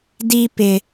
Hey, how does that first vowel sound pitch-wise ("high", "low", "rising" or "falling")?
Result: high